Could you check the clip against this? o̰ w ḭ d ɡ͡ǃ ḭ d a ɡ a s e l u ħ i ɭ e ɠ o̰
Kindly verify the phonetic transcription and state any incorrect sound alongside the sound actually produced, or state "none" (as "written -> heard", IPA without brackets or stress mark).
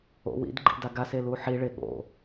none